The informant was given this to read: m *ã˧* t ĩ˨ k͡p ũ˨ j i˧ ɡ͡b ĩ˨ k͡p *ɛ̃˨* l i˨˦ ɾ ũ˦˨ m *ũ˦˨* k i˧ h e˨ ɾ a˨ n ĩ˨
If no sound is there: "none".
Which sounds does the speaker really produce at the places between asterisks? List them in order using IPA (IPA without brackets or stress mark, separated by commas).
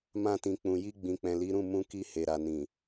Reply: ã˧, ɛ̃˨, ũ˧